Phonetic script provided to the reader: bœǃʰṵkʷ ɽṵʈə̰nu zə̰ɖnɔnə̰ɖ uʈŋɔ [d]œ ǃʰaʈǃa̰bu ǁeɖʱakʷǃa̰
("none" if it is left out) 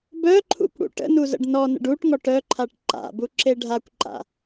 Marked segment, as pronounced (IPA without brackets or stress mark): ʈ